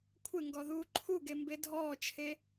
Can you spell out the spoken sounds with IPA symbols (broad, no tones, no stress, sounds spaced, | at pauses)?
kʷʰ ɪ ŋ ɡ ɔ ð uː ǃʰ u ɡ e m b e dʱ ɔː t͡ʃʰ e